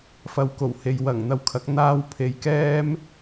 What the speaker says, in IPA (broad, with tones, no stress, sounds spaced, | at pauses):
f ɐ˨ w k o˨˩ w h e˨ j w ɐ˨˩ ŋ n̪ ɐ˨ w kʰ ɐ˨˥ k̚ n̪ aː˧ w pʰ e˨ j k ɛː˥ m